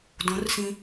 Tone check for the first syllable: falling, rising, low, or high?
rising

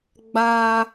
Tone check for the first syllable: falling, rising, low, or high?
high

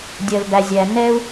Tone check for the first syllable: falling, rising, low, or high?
low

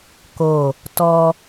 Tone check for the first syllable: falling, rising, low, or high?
falling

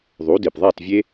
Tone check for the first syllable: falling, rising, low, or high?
rising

